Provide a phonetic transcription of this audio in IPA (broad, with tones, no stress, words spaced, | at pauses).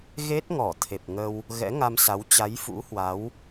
ɣe˦˥t̚ŋɔ˧˩t̪ʰe˨˩p̚ ŋə˧w | ɣɛ̰˧˥ŋa˧msa˨˦w t͡ɕa˨˦jfṵ˧˥hwa˨˦w